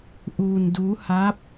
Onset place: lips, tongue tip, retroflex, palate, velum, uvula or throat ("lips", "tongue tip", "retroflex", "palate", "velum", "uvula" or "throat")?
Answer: throat